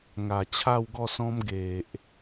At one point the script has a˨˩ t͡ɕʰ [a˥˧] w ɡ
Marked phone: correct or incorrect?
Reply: correct